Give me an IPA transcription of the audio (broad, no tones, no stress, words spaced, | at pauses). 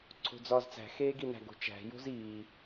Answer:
ǀʰo̤d͡zɒːzt͡sæ̤ xeːɡinæ̤ ɡo̤t͡ʃæ̤ jo̤ziː